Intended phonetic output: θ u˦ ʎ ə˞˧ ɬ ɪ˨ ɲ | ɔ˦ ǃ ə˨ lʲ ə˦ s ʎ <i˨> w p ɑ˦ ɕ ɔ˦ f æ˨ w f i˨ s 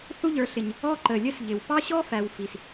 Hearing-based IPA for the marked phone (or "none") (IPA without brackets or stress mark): ɪ˨